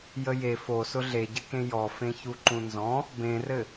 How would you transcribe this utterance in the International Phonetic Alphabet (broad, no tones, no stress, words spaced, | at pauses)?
jəje fosʊ ɮeɟɘkẽ jɔ fẽçuǃũnzɔ̃ | bẽrɘ